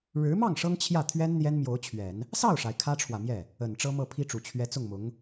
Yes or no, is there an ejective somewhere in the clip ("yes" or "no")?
no